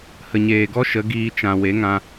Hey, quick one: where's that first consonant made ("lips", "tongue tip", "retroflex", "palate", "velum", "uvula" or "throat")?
throat